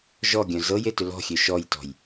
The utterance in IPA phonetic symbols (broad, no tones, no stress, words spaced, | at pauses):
ʒɔ ɡʲœ̃zɤje tʏlɔ̤xʲø ʃɔjtɔ̤j